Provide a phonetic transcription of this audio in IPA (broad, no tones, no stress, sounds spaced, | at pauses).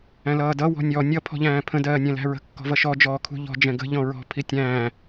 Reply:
æ̃ l ʌː d ʌ w ɔ̤ nʲ ɔ nʲ ʌ pʰ ɔ̤ ʎ æ̃ː pʰ ə̃ d ɜː nʲ ɛ̃ l æ̤ ɹ ə̤ kː ɔ̤ v ʌ ʃ ɔ d͡ʒ ɔː kʰ ṳ ʎ ɔ̤ d͡ʒ ɛ̃ ɡ ə̤ ʎ ɔ̃ ɹ ɔ̤ pʰ i tʲ æ̃ː